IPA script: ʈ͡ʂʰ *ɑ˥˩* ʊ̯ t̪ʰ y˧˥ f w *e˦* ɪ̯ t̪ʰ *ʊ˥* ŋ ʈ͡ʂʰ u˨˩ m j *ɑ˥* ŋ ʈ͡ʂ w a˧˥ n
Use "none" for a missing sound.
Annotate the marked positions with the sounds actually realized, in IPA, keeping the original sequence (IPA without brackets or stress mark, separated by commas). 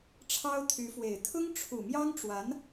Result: ɑ˥, e˨˩, ʊ˥, ɑ˥